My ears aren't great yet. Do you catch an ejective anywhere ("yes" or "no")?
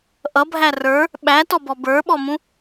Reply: no